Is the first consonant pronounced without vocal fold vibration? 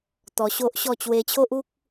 yes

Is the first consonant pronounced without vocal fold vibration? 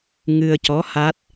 no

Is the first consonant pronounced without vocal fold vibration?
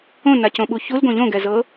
no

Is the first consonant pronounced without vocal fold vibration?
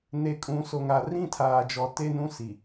no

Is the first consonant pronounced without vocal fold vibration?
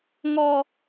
no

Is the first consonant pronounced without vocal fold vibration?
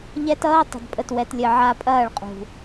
no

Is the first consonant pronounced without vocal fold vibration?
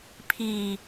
yes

